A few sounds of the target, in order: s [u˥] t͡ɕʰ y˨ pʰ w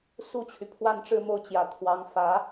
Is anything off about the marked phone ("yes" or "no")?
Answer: no